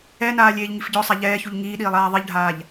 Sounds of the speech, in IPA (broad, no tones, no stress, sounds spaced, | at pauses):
ɛ n aː lʲ eː ʎ ŋ i f ɟ ɔ sˤ a ʎ ɛː ç u ʎ ŋ iː ɗ iː lˠ aː ðˤ i ʎ ɖʱ aː ʎ